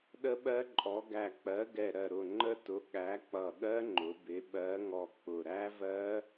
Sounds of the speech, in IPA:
ɗə˦˥ɓɜ˦˥ǃʼɔ˨˥ ɡæ˧˩k͡pɜ˨˥ ɡɛ˧˩ɾɜ˧˩ɾʊ˧˩ ŋ͡ǃə˦˥tʊ˨˥ ɠæ˨˥k͡pʌ˧˩ɠɜ˦˥ ŋ͡ǃʊ˨˥ bɪ˨˥ ɓɜ˨˥ŋɔ˧˩ k͡pʊ˧˩ ɾæ˦˥vɜ˦˥

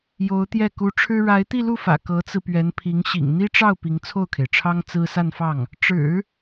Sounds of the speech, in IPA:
jo˧˥ʊ̯t̪jɛ˥˩ ku˧˥ʈ͡ʂʰɻ̩˥ ɻa˧˥ɪ̯t̪i˥˧lu˥˩fä̰˨˩ kɤ˧˥t͡sɹ̩˧pɥɛ˧˥npʰi˧˥ŋ ɕḭ˨˩ŋn̪i˥ʈ͡ʂɑ˥˩ʊ̯ pi˧˥ŋt͡sʰo˥˩ʊ̯kʰe˩ɪ̯ʈ͡ʂʰɑ˥ŋ t͡sɹ̩˥ sa˥˧nfɑ˥˩ŋ | ʈ͡ʂɻ̩˨˩˦

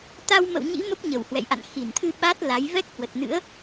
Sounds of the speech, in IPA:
t̪a˧wmə̰˧˨w ɲḭ˧˥ mə˦˥p̚ɲə˧˩w hwɛ̰˧˨jʔa̰˧˨n xi˧˩nt̪ʰɨ˧ ɓa˦˥t̚ la˨˦j vɛ˦˥k̚hwə˨˩t̚nɨ̰˧˥ə̯

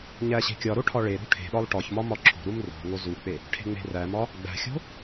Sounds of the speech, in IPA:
ɲæɕe̤kʲɒɾo ʈʰɒɭeɾṳ ʈʰe̤ɗɒlˠ ʈɒçmɒ mɒǁʰo̤ɾum ro̤ ŋozuk͡pe | ʈʰe̤ŋ͡me̤ræmɒ | ɡ͡bæ̤xʲo̤

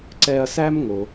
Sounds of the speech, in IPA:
ǀɛ˧ɐ̯sæ˦m ŋo˦

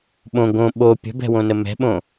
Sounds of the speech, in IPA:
ɓõ ɡõ ɓo pʲə̤bɛ̤wõnə mɛ̤ɓõ

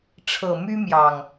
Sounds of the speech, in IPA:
ʈ͡ʂʰɤ˨˩my˦mjɑ˨˩ŋ

